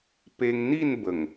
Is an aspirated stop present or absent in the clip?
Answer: absent